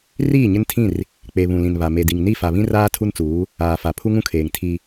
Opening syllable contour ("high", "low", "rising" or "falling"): falling